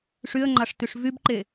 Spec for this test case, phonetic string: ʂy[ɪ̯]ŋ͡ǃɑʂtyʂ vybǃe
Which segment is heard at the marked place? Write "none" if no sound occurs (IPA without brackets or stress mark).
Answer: ə̯